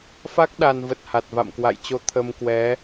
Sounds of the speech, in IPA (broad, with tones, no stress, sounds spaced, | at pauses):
f a˦˥ k̚ ɗ a˨˩ n v ə˨˩ t̚ h a˨˩ t̚ v a̰˧˨ m k w a̰˧˨ j t͡ɕ o˧ t̪ʰ ə˧ m k w ɛ˨˦